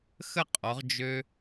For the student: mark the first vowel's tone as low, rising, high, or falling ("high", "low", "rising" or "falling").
falling